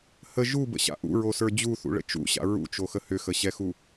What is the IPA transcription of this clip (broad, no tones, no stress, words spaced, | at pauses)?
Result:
hə ʒubə̰ɕa̰ ʔṵɹosə˞ d͡ʑuθṵɭə̰ t͡ʃṵɕa̰ ɹṵt͡ʃoxə hʏxəɕɛxu